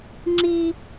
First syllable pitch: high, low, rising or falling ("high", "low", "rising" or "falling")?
high